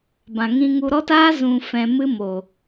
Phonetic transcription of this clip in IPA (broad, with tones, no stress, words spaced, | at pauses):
bã˨ŋĩ˧ŋu˧ɾɔ˦t aː˦ zũ˨ fɛ̃˨mɨ˧mo˨